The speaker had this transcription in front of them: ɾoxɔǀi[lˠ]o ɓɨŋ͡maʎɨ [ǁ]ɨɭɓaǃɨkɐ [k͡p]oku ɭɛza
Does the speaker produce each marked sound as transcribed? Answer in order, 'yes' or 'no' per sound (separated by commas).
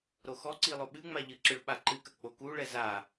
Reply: yes, yes, yes